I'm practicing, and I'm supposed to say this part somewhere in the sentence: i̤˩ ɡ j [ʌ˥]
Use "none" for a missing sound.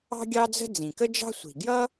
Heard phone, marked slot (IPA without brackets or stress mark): ʌ˥